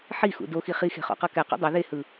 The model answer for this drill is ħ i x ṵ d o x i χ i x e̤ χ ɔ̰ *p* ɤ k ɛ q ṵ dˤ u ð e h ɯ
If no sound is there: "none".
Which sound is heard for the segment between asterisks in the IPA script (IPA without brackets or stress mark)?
q